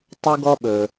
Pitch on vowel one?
high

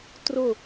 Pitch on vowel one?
falling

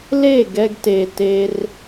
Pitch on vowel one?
falling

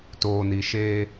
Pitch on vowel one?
low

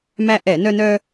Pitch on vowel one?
high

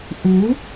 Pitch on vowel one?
rising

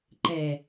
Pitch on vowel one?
low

